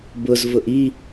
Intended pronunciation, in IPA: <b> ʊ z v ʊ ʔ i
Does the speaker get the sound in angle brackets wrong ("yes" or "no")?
no